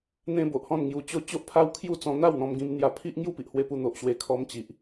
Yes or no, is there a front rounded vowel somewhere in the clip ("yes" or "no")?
no